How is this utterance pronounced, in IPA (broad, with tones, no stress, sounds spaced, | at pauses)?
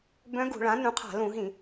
b œ̃˧˥ ɡ ṳ˧˩˧ ɭ ã˩˥ n ũ˩˥ qʰ a̤˧˩˧ l ũ˧˩˧ ɦ ĩ˧˩˧